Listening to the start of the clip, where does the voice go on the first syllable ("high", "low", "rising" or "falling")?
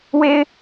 high